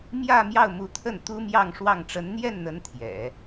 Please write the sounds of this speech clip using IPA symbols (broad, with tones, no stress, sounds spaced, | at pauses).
m j ä˥˧ m j ɑ˥˩ ʊ̯ m u˧˥ t̪ʰ ə˥˩ n t̪ u˥ m j ɑ˥˧ ŋ ʂ w ɑ˥˩ ŋ ʈ͡ʂ ə˧˥ n n̪ j ɛ˥˩ n n̪ ə˧˥ n t̪ʰ j ɛ̰˨˩˦